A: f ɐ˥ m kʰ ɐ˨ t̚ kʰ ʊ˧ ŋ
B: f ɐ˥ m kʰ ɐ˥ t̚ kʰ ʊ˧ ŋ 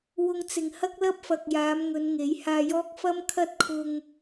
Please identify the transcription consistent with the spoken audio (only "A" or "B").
B